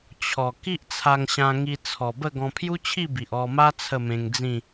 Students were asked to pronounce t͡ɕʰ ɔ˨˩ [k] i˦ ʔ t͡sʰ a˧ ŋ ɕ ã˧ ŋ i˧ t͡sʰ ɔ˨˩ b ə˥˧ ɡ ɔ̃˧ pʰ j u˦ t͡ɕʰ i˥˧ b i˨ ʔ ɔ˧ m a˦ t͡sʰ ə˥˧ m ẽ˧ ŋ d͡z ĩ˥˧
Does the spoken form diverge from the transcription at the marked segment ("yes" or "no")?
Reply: no